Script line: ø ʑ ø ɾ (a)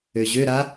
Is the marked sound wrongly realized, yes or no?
no